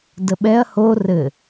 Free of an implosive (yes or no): no